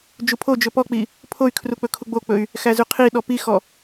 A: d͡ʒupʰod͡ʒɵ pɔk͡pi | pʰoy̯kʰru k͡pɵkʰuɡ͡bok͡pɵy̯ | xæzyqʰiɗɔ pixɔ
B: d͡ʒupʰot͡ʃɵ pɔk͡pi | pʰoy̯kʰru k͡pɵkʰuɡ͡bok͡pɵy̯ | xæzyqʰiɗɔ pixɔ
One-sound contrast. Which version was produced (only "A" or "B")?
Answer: A